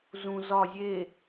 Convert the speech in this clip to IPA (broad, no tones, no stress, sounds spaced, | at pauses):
z ũ z ɒ zʲ e